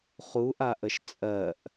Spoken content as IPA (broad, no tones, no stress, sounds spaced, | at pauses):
χ u ʔ a ʔ ə ʃ t͡sʼ ɜ ʔ